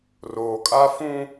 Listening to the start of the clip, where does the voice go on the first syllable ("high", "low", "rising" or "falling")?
low